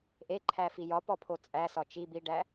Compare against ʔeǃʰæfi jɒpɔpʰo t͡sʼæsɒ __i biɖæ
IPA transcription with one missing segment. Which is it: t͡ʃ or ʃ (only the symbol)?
t͡ʃ